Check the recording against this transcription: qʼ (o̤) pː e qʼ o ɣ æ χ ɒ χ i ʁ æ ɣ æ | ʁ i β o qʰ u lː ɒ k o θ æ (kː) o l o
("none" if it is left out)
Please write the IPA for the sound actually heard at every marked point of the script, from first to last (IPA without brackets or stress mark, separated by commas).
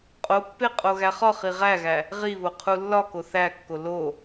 o, kː